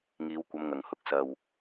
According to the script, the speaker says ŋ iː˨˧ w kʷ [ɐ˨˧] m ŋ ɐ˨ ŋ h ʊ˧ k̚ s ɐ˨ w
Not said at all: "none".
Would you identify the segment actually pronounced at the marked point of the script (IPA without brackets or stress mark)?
ɐ˨˧